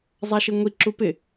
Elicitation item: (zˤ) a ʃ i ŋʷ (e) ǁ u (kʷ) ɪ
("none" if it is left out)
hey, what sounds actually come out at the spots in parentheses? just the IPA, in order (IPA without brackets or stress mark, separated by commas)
zˤ, i, p